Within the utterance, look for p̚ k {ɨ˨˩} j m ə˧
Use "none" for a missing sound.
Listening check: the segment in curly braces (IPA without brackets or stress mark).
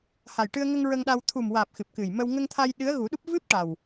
ɨ˨˩